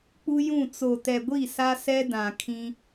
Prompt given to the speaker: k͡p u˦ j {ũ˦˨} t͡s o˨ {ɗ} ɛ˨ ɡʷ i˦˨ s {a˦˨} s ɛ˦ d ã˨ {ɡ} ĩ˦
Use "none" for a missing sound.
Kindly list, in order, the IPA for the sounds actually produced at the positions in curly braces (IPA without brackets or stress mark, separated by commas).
ũ˦˨, t, a˦, kʰ